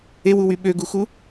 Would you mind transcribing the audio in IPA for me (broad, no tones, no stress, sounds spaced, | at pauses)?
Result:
e w u w y ɓ ø ɡ u x u